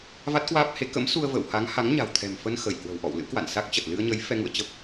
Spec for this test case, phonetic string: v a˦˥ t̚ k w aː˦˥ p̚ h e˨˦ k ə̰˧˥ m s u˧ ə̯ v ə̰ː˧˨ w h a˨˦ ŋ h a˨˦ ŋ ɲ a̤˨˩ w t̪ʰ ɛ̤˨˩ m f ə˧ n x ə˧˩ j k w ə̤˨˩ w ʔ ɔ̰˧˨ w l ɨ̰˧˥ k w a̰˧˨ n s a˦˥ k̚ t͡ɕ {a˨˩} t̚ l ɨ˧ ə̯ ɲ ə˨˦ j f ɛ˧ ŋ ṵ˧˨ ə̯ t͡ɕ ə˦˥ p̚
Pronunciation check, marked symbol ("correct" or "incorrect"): incorrect